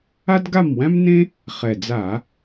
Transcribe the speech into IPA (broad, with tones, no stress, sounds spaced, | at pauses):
a˥ d ɡ a˥˨ m w æ̃˥ m n ẽ˥ | χ ɛ˨˩ d͡z a˧˩˧